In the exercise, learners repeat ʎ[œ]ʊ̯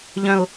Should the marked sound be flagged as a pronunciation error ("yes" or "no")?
yes